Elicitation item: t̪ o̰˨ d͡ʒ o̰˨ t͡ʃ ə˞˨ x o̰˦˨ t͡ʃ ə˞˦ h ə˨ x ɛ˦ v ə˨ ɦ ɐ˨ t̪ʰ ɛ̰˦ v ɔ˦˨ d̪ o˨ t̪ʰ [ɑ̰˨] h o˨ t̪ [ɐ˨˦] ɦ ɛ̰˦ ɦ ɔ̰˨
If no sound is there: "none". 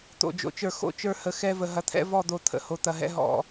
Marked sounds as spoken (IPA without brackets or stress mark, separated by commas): ə̰˨, ɐ˨